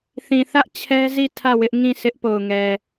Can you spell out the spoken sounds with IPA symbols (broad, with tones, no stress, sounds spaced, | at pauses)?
θ ĩ˨ θ ä˦ ʔ t͡ɕʰ ɛ˦ z i˦˨ tʰ ä˦˨ w ɪ˦ ʔ ŋ ĩ˦˨ s ɪ˦ ʔ p o˨ ʊ̯ ŋ ɛ˨